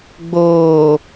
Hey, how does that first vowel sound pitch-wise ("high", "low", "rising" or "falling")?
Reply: low